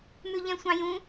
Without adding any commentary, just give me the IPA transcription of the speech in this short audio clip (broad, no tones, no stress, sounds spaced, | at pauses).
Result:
m ʉ ʎ ɛ̃ sʷ ɑ̃ j ũ